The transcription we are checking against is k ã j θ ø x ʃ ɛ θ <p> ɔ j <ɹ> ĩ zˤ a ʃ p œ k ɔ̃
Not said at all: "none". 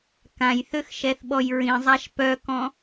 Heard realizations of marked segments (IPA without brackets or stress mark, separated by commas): ɓ, ɹ